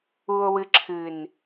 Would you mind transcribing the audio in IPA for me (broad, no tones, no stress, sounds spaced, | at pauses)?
u o̯ w ɨ ǁʰ ɨ n